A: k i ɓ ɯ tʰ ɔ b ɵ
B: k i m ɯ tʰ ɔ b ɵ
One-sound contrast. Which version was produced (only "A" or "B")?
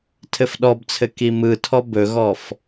B